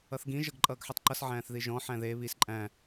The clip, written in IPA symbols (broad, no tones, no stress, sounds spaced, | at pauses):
ʌ θ ɡ ĩ ʒ ʌ ɡ ǃʼ ʌː ɡ ħ ɯ tˤ ǃ ʌ s ʕ æ̃ː θ ð i ʒ ɔ̃ ħ æ̃ ð e β i s ǃʼ æ̃